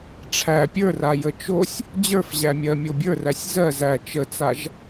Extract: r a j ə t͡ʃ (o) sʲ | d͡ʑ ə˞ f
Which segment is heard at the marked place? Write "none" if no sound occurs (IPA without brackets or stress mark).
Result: o